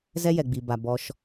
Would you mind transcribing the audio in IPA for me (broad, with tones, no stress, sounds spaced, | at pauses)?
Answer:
z ɛ˦ j ɛ˨ ɡ͡b i˨ b a˨ b ɔ˧ ʃ